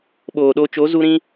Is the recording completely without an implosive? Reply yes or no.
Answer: no